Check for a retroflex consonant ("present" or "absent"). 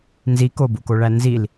present